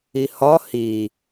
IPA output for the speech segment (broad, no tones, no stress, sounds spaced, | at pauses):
i h ɒ h i